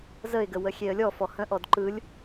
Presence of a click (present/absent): present